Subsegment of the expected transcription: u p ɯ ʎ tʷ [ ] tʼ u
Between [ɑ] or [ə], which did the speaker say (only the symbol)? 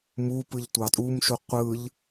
ɑ